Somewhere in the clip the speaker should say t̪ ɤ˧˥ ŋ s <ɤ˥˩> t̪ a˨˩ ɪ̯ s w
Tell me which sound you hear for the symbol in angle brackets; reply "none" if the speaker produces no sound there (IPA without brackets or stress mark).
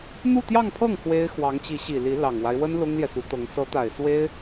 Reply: ɤ˧˥